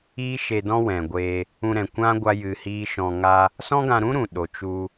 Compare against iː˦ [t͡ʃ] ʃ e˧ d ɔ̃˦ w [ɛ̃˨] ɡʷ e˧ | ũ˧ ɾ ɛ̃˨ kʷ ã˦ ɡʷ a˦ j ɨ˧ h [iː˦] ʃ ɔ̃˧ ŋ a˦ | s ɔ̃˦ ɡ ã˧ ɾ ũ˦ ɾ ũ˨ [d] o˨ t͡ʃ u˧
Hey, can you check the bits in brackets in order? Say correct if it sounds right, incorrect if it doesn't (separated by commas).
incorrect, correct, correct, incorrect